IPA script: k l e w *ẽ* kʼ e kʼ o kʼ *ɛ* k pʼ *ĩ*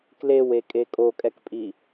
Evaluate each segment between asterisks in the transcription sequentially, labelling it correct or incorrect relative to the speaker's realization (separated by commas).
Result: incorrect, correct, incorrect